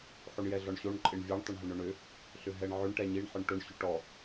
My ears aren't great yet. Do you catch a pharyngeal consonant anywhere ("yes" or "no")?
yes